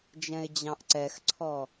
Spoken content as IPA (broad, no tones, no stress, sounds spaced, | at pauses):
d͡ʒ ɛ̃ ɪ̯ d͡ʑ ɑ̃ ʔ ǀ ɛ x ǀʰ ɔ